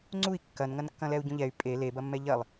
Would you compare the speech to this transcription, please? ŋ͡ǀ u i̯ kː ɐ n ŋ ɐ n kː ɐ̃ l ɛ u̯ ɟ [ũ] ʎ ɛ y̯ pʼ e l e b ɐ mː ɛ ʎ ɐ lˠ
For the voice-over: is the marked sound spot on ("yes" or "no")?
yes